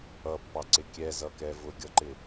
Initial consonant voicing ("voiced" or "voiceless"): voiceless